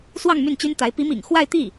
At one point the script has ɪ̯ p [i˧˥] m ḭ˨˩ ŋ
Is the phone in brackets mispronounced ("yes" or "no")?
no